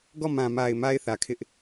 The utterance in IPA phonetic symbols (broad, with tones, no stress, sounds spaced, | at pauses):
ɡ ɔ˦˨ m ã˨ m a˨ ɪ̯ m a˦ ɪ̯ θ ä˨ kʰ ɪ˦ ʔ